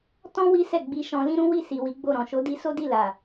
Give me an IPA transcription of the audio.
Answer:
t ɔ̃˦ w i˦ s ɛ˦˨ ɡ͡b i˧ ʃ ɔ̃˧ l ĩ˦ ɾ ũ˦ w i˦˨ s i˨ w i˨˦ ɡ͡b o˦˨ ɾ ɔ̃˨ ʃ o˨˦ d i˧ s o˦ d i˦˨ l a˨

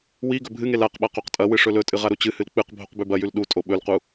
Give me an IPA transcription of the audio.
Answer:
w i ɡ ɵ bʱ ɨ ŋ e l a q ɓ a q o q tʼ ɐ w ɨ ʂ ɵ l ɵ tʼ ɨ ʁ a ɾ u t͡ɕ ɨ h ɨ l k͡p ɨ q bʱ o q b ʉ b ɐ j ʉ l ɗ u tʼ o ɓ ɵ l q u

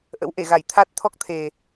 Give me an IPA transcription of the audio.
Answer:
ʔ ə̰˧˥ w ʔ e˧˩ ɣ a˧˩ j t̪ʰ a˦˥ t̚ t̪ʰ ɔ˦˥ k̚ t̪ʰ e˨˩

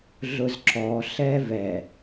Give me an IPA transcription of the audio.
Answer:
ɮ ʊ z ǁ ɔ ɬ ɛ v ɛ

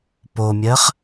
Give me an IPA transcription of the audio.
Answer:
p o mʲ ɜ χ

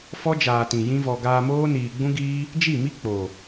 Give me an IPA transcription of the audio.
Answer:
f ɔ˦ d͡ʒ aː˨ t ĩ˨ j ĩ˦ v ɔ˧ ɡ aː˧ m oː˦ n iː˨ ɡ͡b ũ˦ ɡ iː˦ | d͡ʒ i˦˨ m i˦ k͡p o˨

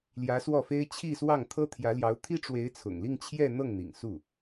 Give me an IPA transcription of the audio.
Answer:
l j ä˧˥ s w ɔ˥˩ f e˥ ɪ̯ t͡ɕʰ i˥˧ s w ɑ˥˩ ŋ t̪ʰ ɤ˥ t̪ʰ j ä˧˥ l j ɑ˧˥ ʊ̯ t̪ʰ i˥ ʈ͡ʂ w e˧˥ ɪ̯ t͡sʰ ʊ̰˨˩ ŋ l i˥˧ ŋ t͡ɕʰ j ɛ˥˧ n̪ ɤ˥˩ ŋ n̪ ḭ˨˩ ŋ s u˥˩

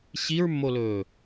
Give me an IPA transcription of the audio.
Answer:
ɕ i ɹ mː o l ɵː

